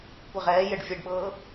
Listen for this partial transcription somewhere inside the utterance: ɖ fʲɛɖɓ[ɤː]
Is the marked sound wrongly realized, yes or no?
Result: no